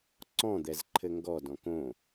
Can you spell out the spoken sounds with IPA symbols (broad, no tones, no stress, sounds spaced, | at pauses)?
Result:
ǀ ɔ̃ d̪ ɛ z ǃʰ ɘ ŋ ɡ ɔ d ɔ̃ k õ